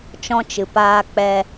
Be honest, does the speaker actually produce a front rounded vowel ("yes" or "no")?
no